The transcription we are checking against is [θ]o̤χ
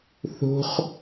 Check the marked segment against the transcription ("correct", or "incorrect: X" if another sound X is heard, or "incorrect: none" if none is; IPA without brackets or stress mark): correct